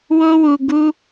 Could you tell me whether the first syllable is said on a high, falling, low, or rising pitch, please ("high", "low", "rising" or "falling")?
high